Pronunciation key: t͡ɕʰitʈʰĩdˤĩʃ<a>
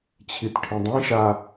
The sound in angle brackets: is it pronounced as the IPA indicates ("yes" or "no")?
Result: yes